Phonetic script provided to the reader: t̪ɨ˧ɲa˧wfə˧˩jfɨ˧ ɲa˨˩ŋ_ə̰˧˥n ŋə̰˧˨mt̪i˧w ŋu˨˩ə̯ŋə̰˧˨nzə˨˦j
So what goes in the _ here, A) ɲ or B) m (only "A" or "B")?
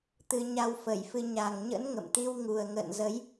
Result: A